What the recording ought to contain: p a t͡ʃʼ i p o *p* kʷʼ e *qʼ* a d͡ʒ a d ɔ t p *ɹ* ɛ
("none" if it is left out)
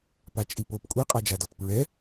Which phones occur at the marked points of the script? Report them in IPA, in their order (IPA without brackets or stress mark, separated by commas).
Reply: p, qʼ, ɹ